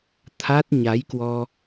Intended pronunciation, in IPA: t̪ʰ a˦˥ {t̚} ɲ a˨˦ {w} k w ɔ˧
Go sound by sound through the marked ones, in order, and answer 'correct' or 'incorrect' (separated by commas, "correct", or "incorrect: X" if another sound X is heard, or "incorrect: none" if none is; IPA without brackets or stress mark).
correct, incorrect: j